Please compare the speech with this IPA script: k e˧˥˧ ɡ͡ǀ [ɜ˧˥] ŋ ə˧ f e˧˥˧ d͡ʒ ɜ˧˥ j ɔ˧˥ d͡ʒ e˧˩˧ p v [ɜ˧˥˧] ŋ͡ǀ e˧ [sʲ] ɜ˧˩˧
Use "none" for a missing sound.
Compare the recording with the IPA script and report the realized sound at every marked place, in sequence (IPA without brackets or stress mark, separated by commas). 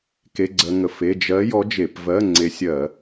ɜ˧, ɜ˧˥˧, sʲ